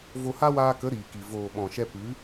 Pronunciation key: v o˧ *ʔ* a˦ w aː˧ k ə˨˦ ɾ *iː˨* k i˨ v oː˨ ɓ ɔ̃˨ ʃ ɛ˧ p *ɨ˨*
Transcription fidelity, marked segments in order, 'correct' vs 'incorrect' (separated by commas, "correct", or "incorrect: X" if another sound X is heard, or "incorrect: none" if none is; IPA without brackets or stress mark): incorrect: h, correct, incorrect: ɨ˨˦